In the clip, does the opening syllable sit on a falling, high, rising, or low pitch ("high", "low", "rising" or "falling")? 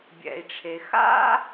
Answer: low